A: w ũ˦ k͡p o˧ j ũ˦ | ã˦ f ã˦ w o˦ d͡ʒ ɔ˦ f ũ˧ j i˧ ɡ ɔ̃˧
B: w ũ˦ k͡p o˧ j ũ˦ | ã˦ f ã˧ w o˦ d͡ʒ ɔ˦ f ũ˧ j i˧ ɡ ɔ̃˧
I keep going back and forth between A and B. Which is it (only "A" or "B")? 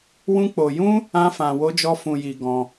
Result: B